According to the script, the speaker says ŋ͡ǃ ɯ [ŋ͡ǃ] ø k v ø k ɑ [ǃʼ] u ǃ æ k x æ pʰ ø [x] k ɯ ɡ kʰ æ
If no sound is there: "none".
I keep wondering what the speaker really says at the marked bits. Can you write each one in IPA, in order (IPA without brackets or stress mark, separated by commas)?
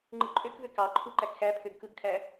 ǃʼ, ǃʰ, ɡ